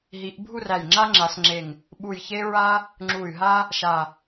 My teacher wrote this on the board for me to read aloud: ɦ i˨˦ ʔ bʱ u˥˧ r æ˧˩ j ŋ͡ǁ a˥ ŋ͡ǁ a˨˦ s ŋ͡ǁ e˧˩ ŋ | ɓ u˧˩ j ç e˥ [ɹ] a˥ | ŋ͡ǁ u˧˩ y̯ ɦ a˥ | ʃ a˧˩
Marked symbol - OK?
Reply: yes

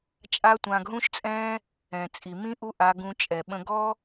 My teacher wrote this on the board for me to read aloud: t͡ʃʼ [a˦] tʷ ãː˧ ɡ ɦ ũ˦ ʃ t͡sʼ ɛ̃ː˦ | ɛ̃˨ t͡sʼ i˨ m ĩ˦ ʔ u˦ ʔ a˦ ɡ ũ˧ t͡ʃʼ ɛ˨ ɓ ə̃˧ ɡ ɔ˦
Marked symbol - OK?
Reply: yes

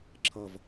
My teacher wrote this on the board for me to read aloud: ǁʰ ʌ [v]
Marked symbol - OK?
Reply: yes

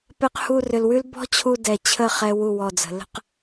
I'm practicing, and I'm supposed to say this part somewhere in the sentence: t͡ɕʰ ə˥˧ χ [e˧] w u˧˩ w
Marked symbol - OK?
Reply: no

